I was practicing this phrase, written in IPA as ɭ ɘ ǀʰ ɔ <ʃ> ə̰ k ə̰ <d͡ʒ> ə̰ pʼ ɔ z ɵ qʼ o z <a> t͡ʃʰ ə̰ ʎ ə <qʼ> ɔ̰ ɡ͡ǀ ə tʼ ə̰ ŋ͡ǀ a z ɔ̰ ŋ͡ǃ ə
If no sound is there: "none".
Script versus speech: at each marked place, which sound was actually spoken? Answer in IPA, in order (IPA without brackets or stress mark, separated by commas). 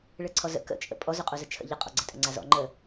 z, t͡ʃʼ, ə, qʼ